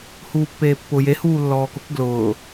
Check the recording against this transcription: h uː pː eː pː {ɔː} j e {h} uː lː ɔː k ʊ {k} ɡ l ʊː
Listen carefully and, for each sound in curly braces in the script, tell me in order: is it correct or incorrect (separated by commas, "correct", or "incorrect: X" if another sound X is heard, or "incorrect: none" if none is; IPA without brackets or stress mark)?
incorrect: ʊː, correct, correct